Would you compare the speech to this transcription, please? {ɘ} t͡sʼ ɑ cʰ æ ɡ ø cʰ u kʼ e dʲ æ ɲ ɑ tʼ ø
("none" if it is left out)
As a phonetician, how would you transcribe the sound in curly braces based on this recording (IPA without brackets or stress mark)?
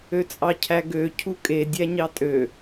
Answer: ø